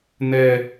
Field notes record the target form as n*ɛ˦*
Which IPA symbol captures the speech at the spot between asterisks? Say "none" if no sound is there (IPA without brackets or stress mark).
ɛ˦